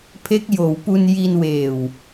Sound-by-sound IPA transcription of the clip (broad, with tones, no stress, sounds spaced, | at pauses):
pʰ e˦˥ k̚ j oː˩˦ w p u˧ n j i˧ n w eː˨˩ w